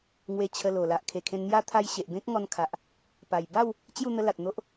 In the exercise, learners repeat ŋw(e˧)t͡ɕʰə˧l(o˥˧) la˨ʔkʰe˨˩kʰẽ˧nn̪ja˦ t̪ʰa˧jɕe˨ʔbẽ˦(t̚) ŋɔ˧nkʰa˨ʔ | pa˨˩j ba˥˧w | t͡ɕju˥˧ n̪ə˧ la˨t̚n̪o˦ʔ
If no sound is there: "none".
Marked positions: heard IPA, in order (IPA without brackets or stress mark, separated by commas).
e˧, o˨˩, k̚